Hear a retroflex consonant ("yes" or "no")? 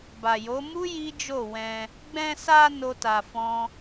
no